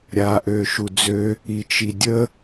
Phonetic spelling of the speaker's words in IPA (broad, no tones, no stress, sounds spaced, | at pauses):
ɾʲ aː ʔ øː ʃ u d͡z ø | i t͡ʃ i dʲ ə